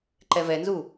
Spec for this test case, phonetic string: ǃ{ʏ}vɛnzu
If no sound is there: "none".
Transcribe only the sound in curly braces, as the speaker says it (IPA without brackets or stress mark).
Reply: ɛ